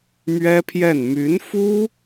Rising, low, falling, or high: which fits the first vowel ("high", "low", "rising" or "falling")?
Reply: high